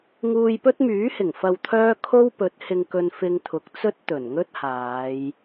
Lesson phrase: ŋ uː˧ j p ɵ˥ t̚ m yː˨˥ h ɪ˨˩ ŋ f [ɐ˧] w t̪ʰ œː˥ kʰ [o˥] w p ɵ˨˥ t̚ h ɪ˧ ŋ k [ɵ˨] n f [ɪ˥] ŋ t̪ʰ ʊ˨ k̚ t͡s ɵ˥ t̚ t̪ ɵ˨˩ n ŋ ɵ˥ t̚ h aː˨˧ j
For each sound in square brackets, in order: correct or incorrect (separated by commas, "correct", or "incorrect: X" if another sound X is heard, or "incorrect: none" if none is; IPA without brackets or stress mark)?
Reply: correct, correct, incorrect: ɵ˧, incorrect: ɪ˧